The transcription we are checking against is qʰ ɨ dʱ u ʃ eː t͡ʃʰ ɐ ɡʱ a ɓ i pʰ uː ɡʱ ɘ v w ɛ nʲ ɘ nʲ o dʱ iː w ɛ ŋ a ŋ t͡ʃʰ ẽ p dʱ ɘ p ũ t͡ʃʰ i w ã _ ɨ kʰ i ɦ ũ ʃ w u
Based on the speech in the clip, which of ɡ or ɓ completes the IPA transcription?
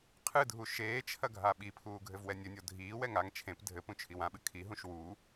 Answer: ɓ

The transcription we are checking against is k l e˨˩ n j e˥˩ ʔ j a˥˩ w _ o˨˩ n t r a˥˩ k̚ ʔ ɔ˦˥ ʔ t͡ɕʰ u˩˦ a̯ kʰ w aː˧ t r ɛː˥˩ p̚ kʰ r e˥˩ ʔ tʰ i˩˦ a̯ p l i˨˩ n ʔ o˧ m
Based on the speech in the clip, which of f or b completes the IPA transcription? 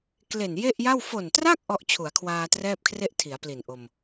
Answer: f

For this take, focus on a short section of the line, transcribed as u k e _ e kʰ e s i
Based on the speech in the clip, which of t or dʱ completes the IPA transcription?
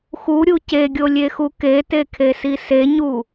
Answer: t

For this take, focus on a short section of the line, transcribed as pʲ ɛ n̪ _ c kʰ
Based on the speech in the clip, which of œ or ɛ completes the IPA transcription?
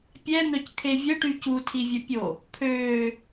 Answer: œ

